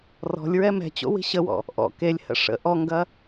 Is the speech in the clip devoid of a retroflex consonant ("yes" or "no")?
no